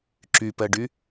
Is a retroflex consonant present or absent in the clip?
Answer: present